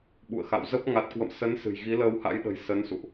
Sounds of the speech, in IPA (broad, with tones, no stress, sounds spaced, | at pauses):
ɓ ṵ˧˨ ə̯ x a̰˧˨ w z ə˦˥ p̚ ŋ a˨˩ t̚ k w ə̰˧˨ m s ə˨˦ n s ɨ̤˨˩ j ɣ i˨˦ l əː˧ w h a̰˧˥ j ɗ ə̤˨˩ j s ə˨˦ n s ṵ˧˨ ʔ